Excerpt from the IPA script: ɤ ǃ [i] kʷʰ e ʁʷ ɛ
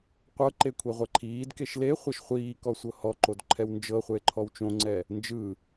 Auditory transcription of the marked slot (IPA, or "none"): e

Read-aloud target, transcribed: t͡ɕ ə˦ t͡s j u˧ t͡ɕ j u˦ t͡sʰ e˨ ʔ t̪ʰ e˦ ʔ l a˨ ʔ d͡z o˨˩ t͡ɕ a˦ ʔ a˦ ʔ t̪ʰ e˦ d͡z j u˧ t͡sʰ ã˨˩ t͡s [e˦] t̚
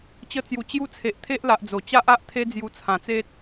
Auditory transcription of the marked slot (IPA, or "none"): e˦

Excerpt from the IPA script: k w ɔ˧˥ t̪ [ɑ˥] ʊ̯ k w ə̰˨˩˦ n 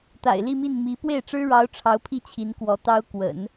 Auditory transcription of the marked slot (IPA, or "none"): ɑ˥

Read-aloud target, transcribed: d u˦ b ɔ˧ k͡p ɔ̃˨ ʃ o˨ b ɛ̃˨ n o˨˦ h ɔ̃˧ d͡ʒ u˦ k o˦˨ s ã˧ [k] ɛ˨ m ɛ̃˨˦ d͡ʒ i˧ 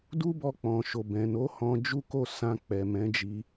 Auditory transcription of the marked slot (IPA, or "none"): k͡p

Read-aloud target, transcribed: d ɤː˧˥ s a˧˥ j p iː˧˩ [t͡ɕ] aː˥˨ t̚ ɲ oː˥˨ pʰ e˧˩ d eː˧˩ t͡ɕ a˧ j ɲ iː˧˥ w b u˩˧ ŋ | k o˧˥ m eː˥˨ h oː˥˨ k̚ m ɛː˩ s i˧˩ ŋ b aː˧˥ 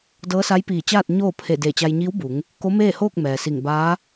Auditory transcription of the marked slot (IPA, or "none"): t͡ɕ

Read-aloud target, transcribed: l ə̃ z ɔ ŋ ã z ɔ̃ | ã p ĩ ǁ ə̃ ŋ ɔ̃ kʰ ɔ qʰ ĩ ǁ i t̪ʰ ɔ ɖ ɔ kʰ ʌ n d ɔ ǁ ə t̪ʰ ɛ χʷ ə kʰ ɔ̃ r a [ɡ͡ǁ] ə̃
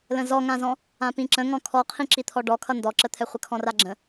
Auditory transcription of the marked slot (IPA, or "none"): ɡ͡ǁ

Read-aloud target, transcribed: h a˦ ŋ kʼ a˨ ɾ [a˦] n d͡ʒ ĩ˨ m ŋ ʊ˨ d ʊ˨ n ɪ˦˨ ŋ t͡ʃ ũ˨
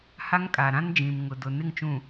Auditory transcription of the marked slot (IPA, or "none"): ã˦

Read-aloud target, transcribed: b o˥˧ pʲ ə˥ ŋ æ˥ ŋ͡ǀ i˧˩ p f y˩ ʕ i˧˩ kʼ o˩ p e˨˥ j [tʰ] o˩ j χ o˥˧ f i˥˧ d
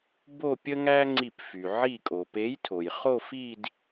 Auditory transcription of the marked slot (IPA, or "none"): tʰ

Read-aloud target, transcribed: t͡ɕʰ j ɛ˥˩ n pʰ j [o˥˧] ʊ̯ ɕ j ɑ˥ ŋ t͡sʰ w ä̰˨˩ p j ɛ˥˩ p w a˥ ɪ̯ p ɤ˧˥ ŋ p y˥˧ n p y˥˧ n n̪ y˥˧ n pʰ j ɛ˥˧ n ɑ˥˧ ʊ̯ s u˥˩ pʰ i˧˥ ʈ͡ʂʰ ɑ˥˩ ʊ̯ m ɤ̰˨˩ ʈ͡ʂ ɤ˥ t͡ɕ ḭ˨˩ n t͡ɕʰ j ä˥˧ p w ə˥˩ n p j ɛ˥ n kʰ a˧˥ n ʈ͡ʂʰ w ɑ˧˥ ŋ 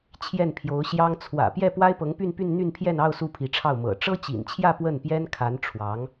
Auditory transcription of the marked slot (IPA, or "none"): o˧˥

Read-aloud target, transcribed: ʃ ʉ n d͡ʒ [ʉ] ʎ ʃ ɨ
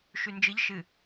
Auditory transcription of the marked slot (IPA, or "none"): ɨ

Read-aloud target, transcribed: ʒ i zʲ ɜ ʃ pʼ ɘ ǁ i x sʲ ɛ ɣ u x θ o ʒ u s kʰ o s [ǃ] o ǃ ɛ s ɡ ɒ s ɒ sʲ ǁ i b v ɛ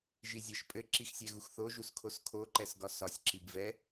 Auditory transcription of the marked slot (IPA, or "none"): kʰ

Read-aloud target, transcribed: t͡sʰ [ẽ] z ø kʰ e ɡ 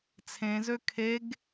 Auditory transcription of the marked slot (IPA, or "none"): ẽ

